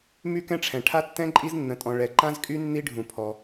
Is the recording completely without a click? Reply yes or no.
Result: no